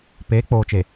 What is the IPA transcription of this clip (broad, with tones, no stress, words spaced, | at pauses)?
peː˨˦k͡poː˨t͡ʃe˨